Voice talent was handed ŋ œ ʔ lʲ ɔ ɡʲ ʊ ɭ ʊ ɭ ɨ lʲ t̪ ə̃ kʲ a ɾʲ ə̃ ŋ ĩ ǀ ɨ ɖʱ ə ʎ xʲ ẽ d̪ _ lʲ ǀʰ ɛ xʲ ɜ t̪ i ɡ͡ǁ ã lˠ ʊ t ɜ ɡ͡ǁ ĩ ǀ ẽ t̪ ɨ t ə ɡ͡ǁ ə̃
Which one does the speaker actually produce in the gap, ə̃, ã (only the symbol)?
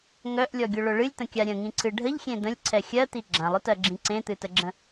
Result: ə̃